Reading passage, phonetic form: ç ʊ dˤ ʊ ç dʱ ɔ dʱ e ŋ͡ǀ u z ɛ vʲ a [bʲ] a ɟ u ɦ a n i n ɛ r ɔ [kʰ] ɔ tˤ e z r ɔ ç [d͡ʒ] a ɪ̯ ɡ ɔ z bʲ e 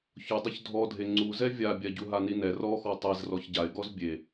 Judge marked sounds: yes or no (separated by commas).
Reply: yes, no, no